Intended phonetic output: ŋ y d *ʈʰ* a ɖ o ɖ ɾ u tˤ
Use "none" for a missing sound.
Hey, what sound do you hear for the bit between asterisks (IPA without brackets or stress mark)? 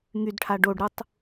ʈʰ